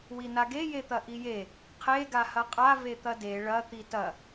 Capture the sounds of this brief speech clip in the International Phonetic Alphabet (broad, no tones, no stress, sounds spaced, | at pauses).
w i n a ɡ e j e t̪ ɐ ʔ i j e | qʰ e ɡ a h ɐ qʼ a v e t̪ ɐ d e ɭ ɐ t̪ i t ɐ